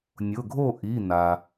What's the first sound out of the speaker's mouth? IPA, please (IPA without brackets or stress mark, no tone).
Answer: nʲ